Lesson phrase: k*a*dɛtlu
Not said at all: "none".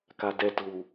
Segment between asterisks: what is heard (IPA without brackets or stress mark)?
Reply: a